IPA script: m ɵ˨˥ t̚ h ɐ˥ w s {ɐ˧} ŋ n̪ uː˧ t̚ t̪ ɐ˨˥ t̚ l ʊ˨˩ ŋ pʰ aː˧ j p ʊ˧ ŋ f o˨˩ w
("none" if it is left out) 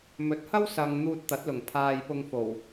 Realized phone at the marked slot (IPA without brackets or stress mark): ɐ˨